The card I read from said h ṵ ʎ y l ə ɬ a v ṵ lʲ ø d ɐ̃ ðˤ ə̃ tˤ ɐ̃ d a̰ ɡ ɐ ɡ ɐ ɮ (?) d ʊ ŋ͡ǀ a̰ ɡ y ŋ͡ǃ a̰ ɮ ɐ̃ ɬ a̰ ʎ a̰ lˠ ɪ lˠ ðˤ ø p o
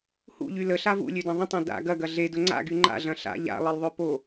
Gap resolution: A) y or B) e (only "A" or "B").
B